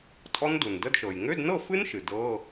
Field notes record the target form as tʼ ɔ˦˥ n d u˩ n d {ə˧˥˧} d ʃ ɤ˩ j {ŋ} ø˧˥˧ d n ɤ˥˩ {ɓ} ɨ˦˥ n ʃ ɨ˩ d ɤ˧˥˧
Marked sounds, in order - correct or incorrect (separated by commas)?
correct, correct, incorrect